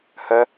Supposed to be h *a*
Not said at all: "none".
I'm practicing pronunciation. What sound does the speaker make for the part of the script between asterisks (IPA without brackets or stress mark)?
ə